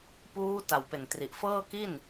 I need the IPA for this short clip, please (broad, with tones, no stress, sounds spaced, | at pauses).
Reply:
p uː˦˥ t a˨˩ w p e˨˩ n t r i˨˩ ʔ f ɤː˥˩ k i˥˩ n